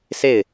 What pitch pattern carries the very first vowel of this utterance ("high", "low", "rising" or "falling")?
falling